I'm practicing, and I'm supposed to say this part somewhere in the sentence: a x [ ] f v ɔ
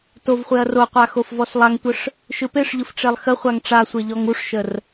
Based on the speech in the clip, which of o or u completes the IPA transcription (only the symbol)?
o